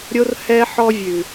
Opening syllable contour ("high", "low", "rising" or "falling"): high